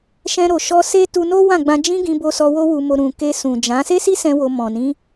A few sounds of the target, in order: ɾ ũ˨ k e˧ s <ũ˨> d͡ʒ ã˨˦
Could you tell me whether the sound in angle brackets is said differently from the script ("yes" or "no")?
no